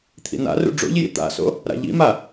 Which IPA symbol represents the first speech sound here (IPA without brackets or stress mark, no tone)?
t̪ʰ